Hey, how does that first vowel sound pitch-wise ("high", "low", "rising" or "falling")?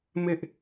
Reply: high